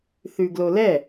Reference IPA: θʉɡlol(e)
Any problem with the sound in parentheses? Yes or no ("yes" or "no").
yes